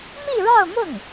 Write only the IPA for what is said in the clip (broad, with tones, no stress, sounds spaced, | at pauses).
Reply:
m i˥˧ ɻ ɑ˥˧ ʊ̯ m ʊ˥˩ ŋ